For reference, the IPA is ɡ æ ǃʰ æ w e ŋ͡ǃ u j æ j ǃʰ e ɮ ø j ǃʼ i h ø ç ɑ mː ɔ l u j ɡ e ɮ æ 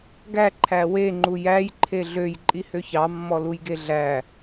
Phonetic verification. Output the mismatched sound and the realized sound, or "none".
none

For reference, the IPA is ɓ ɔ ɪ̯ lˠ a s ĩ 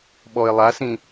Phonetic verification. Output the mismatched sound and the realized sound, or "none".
none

